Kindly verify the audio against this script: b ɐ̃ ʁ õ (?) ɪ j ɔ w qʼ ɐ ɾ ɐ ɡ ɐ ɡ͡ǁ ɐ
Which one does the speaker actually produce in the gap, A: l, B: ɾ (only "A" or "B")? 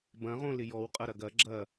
A